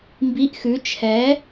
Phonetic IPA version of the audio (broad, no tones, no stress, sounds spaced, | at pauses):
m b i ʔ x ʉ t͡ʃʰ ɛ